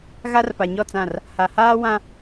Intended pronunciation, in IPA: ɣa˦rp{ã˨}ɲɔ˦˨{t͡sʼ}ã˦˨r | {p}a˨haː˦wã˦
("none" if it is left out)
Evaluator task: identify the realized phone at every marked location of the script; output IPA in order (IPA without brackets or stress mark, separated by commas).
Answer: a˨, t͡s, h